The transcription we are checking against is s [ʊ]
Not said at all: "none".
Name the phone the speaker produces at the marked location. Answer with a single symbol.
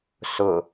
ʊ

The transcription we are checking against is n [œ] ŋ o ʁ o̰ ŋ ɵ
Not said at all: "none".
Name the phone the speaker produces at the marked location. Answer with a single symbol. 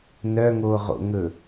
œ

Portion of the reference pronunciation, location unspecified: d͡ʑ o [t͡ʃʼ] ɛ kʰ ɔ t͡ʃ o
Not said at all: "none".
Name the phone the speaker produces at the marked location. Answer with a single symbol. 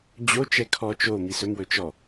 t͡ʃ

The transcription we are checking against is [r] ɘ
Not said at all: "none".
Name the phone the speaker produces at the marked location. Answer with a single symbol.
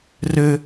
r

